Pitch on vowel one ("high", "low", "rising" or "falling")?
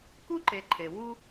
high